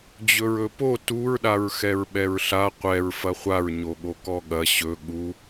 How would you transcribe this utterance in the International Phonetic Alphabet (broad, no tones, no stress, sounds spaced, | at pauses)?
d͡ʑ ɵ ɹ ɵ p o t u ɹ ɗ a ɹ x ɛ ɹ ɓ ɛ ɹ ɬ a qʷ ɛ ɹ f ɐ χʷ a ɹ ɲ o ɠ o k ɔ ɠ ɐ ɕ ɵ ɠ u